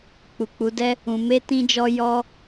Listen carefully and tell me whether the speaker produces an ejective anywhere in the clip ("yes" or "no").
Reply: no